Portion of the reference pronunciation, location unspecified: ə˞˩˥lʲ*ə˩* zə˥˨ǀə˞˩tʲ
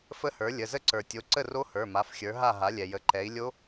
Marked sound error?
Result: yes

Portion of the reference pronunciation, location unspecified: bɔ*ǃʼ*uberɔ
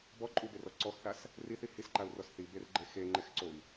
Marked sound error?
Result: no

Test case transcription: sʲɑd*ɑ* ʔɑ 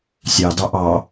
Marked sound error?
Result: no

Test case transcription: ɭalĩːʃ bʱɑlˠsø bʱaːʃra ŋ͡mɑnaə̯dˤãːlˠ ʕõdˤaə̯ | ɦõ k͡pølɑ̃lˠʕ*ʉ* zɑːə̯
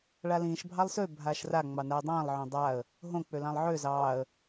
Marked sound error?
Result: yes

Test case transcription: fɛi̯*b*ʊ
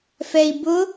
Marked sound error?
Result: no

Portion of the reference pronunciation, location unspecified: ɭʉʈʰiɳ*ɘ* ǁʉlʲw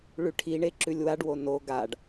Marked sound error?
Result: yes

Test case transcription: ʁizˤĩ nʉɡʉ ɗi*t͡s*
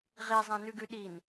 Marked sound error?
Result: yes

